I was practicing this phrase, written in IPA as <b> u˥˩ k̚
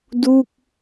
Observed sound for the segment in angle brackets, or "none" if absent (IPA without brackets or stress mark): d